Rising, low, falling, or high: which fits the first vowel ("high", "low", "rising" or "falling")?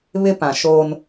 high